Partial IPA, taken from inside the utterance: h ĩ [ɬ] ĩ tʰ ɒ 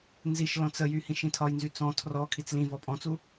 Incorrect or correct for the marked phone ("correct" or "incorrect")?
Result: incorrect